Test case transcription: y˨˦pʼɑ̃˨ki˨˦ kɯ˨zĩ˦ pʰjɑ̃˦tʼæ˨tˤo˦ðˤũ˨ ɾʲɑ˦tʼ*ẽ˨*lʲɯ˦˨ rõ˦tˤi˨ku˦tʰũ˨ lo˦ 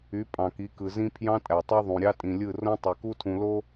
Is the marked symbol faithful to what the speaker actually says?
no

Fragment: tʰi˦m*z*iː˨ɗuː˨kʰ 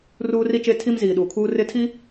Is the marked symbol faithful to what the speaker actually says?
yes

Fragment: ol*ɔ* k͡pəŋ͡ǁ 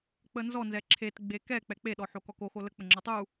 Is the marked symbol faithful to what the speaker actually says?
no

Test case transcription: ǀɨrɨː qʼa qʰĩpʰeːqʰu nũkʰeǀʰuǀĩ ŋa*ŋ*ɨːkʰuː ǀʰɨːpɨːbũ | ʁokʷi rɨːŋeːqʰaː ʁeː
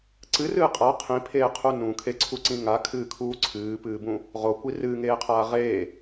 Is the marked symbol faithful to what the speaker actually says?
no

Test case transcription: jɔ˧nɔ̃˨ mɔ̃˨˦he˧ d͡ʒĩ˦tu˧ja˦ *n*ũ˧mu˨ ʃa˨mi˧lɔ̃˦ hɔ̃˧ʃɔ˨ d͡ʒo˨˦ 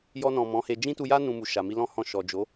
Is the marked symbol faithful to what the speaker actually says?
yes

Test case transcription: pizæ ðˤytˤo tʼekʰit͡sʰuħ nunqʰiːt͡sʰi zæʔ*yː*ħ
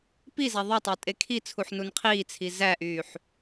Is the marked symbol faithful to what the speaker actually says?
yes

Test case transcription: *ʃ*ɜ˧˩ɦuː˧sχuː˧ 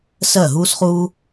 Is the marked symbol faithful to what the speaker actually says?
no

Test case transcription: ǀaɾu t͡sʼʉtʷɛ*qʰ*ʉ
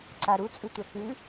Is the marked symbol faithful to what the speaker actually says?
no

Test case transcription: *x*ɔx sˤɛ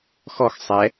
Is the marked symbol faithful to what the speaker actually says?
yes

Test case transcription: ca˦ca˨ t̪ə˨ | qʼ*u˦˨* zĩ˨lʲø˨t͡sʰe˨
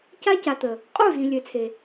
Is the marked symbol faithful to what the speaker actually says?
yes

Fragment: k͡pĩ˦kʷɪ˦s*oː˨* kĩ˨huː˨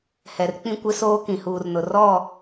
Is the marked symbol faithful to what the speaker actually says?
no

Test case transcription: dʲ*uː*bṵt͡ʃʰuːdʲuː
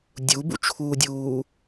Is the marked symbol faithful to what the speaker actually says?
no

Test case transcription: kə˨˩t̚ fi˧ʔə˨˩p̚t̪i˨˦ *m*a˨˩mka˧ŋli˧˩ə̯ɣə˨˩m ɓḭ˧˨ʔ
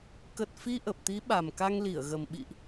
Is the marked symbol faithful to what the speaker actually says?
no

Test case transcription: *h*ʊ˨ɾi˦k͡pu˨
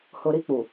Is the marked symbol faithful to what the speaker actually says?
yes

